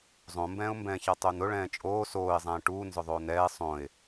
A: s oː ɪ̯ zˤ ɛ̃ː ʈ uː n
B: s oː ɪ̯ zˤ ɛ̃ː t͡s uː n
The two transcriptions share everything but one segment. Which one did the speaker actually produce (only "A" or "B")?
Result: A